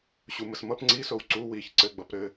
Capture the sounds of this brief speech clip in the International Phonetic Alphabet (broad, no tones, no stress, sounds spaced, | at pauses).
ɕ u m ə s m ʌ p ŋ͡ǀ i s o w ǀ u w i ç ǀ ɘ ɡ͡b ʌ p ɾ ɘ